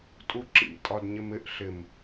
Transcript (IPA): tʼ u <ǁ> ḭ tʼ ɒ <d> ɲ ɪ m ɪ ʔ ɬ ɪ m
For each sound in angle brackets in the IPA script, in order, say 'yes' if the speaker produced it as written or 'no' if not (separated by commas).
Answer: yes, yes